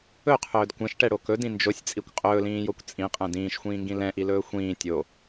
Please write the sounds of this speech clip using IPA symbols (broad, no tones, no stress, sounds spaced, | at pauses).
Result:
ɵ qʰ ɵː d kʷ ɛ̃ ʃ ʈ ɛ ɽ o k ɵ d ĩ n d͡ʒ o sʲ t͡sʼ i kʷ qʼ ɵː l ĩː j o kʷ t͡sʼ ĩ qʼ ɛ̃ d ĩː ʃ xʷ ĩː ŋ ɡ ĩ l ɛ̃ ʔ i l ɵː xʷ ĩː tʲ o